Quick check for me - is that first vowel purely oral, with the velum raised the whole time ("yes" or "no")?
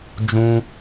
no